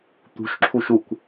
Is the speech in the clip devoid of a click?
no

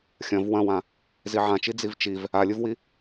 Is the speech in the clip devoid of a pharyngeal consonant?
no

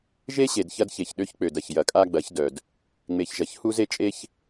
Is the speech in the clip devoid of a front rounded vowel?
no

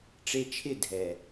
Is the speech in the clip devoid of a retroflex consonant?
no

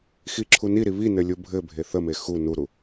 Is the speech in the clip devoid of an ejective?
yes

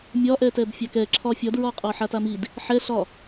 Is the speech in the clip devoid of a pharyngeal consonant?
no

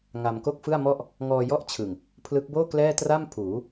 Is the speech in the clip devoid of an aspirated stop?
no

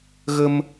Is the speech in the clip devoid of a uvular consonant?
yes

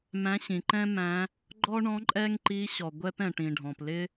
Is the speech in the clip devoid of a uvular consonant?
yes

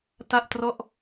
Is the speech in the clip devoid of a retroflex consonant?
yes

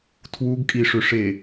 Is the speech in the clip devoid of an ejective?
no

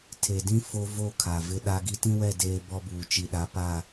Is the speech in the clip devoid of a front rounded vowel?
yes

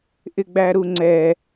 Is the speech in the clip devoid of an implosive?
yes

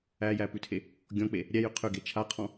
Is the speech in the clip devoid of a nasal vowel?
no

